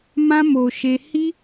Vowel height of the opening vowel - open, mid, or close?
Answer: open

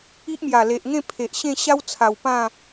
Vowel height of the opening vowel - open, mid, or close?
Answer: close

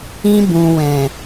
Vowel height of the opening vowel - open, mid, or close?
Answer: close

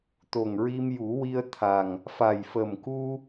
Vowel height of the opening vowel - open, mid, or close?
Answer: mid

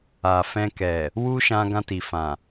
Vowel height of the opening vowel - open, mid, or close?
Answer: open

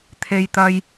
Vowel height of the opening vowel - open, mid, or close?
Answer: mid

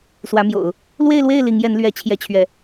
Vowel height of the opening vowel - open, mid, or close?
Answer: open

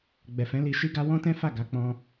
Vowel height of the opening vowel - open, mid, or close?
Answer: mid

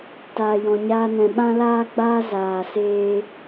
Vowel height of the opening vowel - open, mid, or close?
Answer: open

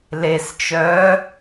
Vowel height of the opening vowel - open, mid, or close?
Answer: mid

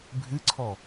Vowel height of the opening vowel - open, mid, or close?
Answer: close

